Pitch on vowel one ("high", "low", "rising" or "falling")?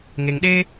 low